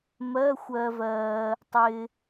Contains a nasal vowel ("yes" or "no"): no